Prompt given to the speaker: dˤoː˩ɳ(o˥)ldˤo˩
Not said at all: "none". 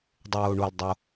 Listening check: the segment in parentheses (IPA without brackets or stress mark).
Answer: o˩